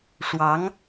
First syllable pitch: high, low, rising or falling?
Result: rising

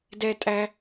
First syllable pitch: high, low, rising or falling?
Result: high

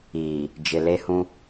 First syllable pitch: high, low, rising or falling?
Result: low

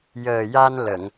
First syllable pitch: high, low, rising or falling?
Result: low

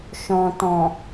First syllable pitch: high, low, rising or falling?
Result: low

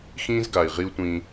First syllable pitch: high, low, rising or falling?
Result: high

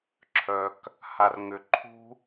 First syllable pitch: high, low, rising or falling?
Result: low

